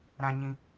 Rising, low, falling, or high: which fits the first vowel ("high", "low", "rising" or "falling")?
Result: high